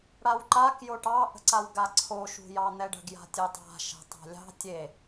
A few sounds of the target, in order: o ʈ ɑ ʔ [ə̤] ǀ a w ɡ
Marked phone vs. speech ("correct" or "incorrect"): correct